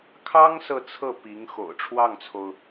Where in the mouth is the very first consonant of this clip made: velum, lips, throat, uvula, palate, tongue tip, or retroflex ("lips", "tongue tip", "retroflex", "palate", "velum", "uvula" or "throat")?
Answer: velum